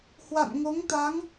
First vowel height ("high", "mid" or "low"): low